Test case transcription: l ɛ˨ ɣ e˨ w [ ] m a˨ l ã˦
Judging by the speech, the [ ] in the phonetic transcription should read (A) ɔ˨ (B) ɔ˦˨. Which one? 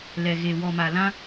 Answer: A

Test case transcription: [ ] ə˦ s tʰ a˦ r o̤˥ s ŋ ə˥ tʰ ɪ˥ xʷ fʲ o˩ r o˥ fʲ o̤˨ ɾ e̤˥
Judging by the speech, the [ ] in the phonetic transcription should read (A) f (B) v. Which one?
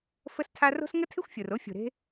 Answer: A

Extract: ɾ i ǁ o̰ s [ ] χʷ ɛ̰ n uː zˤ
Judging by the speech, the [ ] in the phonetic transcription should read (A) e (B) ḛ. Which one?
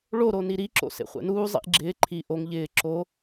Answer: B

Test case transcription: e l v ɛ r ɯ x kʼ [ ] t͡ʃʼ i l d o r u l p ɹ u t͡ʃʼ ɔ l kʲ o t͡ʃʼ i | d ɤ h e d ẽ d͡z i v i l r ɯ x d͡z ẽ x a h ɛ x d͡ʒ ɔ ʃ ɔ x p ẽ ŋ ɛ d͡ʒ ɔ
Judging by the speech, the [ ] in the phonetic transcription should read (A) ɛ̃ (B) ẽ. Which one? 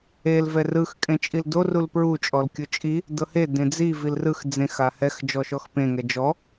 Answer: B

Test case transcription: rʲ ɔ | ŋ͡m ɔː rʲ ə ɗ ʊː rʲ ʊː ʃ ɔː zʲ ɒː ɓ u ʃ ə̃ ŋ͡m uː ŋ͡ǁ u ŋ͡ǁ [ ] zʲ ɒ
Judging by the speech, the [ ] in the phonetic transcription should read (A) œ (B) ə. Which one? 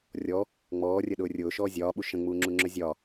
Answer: A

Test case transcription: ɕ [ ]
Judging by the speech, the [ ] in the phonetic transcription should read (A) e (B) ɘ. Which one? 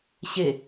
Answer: A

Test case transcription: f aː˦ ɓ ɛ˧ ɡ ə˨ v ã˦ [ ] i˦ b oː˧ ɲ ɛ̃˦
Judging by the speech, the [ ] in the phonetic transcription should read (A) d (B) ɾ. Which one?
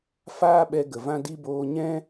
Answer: A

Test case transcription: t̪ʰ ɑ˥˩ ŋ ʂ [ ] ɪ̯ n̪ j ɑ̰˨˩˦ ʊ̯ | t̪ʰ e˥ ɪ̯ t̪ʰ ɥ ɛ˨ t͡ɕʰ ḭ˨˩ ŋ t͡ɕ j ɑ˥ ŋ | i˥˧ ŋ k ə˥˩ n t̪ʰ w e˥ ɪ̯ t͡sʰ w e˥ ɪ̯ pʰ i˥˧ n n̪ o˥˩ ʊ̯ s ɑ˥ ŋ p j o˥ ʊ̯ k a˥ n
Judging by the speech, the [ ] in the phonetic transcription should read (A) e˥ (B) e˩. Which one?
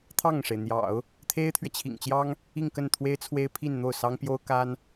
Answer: B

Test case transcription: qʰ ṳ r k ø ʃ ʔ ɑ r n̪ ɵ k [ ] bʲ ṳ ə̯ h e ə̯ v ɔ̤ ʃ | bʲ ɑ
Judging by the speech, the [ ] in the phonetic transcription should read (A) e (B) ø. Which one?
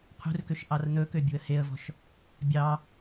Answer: B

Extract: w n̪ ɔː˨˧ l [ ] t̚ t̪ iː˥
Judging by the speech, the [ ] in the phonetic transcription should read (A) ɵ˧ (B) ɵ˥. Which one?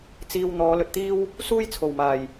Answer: A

